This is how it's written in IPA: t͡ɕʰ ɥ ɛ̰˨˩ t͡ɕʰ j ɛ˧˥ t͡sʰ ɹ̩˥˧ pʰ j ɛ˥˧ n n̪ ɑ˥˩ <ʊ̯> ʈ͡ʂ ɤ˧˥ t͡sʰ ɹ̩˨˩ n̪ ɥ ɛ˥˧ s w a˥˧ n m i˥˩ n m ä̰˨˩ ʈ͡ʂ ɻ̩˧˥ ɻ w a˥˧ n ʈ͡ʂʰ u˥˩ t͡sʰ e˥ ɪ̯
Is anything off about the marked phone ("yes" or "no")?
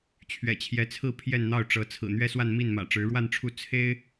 no